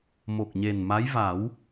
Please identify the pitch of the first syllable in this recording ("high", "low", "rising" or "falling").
low